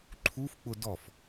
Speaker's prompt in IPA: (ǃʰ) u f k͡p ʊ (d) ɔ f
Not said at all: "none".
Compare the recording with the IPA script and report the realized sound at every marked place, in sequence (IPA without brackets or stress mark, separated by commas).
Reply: ǃʰ, d